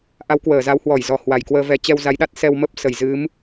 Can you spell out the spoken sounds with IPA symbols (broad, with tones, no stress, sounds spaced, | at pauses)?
ʔ a˨˦ w k w əː˧˩ z a˨˦ w h w ɔ˧˩ j z ɔ˨˩ h w a˧˩ j k w əː˧ v ɛ˧ t͡ɕ ɛ˧ w z a˨˦ j ɗ a˦˥ t̚ s ɛ˧ w m ə˦˥ p̚ s ə˧˩ j z ɨ˨˦ m